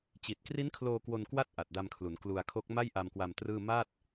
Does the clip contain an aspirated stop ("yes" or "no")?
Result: yes